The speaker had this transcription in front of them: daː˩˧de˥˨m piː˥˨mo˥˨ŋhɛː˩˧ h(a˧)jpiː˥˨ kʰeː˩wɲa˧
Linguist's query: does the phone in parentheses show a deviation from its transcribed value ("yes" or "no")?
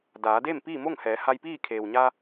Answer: no